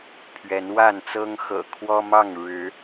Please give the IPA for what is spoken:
pʰ ɥ ɛ˨˦ n w a˥˨ n t͡s ɤ˦ ŋ x ɤ̰˨˩ kʰ w ɔ˦ m ɑ˥˨ ŋ ɻ ɻ̩˨˦

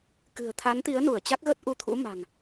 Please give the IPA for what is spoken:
k ɨ̤˨˩ ə̯ t̪ʰ a˨˦ n t̪ i˨˦ ə̯ n u˧˩ ə̯ t͡ɕ a˦˥ k̚ ɣ ə˦˥ t̚ ʔ u˧ t̪ʰ ṵ˧˥ m a̤˨˩ ŋ

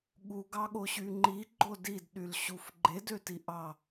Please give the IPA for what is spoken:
ɠ u ɡ ɑ ɠ o ɕ y ŋ͡ǃ i ɡ͡ǃ o d i d ɗ y l ɕ u f ɡ͡ǃ e d ø t i ʔ ɑ

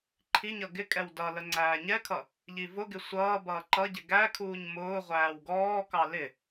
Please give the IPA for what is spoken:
ǃʰ i ɲ ʌ ɡ ɪ kʼ ɛ w d ʌ l ə ŋ͡ǀ æː ɲ ɛ kʰ ʌ | ʎ i v ʊ ɡ ɪ sʷ ʌː b ʌː ǃ ʌ ɟ ɪ ɡ æ kʰ uː ɲ m ʊː ʁʷ æː w ɡ ɔː k ɑ l ɪ

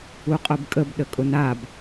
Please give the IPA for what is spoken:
u qʼ ʊ b kʼ ə b ɗ ə kʼ ʊ n a b

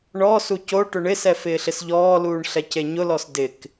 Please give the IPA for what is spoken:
ɳ ɔ s u c o ʈ ʊ ɳ ɪ s ɛ f ɪː ɬ ɪ s ʎ ɔː l uː ɳ ɬ ɛ c e ɲ ʊ l ɔ s d ɪ k

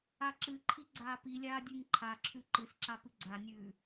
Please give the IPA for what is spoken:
a ǁ ɨ ǃʰ i ɡ͡ǀ aː p i lʲ aː dʲ ʉ ŋ ǃʰ a ǁʰ ʉ ǃ ɨ s ǁ a p ɨ ɡ͡ǀ a nʲ ʉː

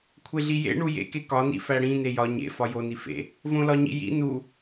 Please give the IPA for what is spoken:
kʷʰ e ɮ i j ḛ ɳ u j ḛ k e k ɒ n ḭ f æ ɽ ĩ n e j ɒ ɲ ḛ f ɒ j o n i f ḛ | v õ l ɒ ɲ ḭ j ḭ n u

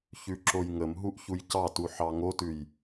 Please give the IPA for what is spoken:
ç ʉ ǁ o j ŋ ə m ɦ u ʔ ç u j c ɑ t u ħ ɑ ŋ o t ʉ j

